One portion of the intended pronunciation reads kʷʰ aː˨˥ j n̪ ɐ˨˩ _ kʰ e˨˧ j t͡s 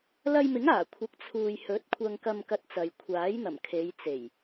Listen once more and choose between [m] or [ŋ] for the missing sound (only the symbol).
m